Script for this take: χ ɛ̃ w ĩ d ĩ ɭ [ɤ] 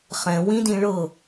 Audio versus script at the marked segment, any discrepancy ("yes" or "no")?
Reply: no